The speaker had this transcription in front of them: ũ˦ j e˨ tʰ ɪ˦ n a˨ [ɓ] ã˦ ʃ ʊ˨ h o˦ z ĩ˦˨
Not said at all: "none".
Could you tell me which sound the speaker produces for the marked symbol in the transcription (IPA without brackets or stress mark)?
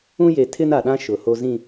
ɗ